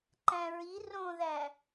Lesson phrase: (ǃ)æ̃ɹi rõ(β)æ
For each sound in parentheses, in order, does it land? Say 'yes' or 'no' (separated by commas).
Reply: yes, no